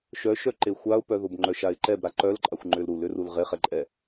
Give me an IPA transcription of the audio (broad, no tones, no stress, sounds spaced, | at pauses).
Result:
ʃ œ ʃ œ ǃ e xʷ a ʊ̯ p œ ð o b ŋ͡ǃ œ ʃ a ɪ̯ ǃ ɛ b ɾ a ǃ œ l ǃʼ a xʷ ŋ͡ǃ ʏ l ɾ u l ʏ r u l ʁ e χ ɛ ǃʼ ɛ